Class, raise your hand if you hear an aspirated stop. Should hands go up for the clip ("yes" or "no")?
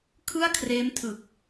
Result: yes